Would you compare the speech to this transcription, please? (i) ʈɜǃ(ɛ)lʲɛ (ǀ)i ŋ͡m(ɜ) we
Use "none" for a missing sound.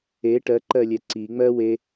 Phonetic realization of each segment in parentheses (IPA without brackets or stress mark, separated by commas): e, ɜ, ǀ, ɜ